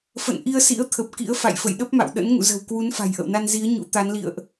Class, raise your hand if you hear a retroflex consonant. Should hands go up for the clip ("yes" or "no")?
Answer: no